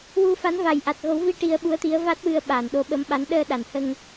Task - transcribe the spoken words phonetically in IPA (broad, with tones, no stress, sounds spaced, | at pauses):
w u˧ f a˧˥ n v a˨˩ j ʔ a˨˩ t̚ ɣ o˨˩˦ w v i˧ ʈ i˧ ə̯ ɓ u˧˥ ə̯ t̪ i˧˥ ə̯ v a˦˥ t̚ w ɨ˧ ə̯ ɓ aː˨˩˨ n ɗ o˧˥ ɓ ə˧˥ m ɓ a˧˥ n ɗ əː˧ ɗ a˨˩˨ n h ə˧ ŋ